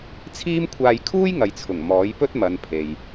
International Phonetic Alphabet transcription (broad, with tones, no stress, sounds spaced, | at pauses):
t͡sʰ iː˥ m kʷʰ aː˧ j kʰ uː˥ j ŋ ɐ˨ j t͡sʰ ʊ˨˩ ŋ m ɔː˨˥ j p ɵ˥ t̚ m ɐ˨˧ n pʰ e˨ j